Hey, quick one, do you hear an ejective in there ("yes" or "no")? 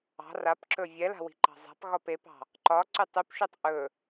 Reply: no